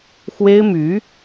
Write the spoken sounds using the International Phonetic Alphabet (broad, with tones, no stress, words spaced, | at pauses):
xwe˥ɪ̯my˧˥